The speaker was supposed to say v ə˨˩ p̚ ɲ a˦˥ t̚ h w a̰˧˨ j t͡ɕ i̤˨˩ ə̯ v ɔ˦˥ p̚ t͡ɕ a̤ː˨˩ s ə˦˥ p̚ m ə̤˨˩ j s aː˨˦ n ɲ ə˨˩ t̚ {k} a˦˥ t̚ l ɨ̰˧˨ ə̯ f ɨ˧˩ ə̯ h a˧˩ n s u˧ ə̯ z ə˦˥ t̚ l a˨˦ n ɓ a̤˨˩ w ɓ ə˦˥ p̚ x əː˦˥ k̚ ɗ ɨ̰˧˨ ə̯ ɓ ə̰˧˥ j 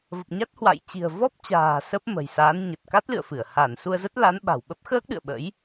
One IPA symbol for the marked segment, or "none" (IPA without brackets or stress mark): k